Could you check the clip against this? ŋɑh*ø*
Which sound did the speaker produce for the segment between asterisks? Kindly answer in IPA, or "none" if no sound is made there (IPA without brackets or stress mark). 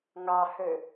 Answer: ø